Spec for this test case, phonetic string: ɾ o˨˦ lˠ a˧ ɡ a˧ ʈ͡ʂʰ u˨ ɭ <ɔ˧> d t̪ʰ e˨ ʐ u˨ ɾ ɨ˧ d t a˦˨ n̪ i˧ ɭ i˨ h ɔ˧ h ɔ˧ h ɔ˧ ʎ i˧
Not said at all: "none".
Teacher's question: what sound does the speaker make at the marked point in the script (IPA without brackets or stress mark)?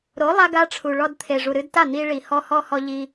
ɔ˧